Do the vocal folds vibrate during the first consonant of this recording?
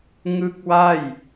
yes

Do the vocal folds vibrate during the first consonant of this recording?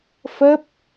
no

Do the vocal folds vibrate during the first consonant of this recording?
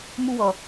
yes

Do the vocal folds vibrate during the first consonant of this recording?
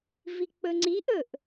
yes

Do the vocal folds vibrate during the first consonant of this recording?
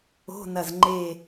yes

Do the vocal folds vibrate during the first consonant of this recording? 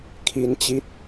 no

